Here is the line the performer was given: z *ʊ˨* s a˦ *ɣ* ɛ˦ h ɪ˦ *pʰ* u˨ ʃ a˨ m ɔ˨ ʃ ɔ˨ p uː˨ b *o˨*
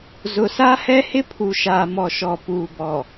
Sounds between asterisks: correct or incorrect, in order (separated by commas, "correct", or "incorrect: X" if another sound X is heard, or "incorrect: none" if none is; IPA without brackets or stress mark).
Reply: correct, incorrect: h, correct, incorrect: ɔ˨